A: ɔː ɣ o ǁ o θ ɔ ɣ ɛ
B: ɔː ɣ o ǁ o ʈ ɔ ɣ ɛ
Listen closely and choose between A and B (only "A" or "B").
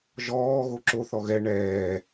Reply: A